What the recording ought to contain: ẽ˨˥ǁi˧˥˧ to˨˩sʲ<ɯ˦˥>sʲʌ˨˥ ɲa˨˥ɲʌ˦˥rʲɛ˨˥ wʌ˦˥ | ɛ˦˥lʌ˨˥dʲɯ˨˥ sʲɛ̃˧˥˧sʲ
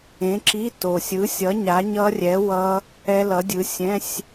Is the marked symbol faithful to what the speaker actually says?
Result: no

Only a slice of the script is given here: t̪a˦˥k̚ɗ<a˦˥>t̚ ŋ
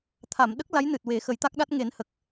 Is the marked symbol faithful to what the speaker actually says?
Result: yes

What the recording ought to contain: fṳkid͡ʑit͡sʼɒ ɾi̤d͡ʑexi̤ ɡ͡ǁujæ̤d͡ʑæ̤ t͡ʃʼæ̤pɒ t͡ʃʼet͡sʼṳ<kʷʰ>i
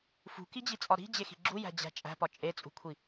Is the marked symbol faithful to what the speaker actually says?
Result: yes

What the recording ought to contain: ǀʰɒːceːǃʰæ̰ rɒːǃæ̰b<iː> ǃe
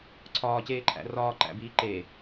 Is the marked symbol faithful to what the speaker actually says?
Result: yes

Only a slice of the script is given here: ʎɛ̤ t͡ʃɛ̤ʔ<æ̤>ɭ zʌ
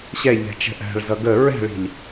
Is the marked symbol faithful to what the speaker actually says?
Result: yes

